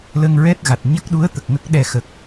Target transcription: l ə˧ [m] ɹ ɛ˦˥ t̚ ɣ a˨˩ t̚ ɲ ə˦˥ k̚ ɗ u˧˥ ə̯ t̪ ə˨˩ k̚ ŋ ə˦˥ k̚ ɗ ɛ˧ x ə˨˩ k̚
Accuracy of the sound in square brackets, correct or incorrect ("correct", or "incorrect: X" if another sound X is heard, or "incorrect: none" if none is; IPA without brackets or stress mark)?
incorrect: ŋ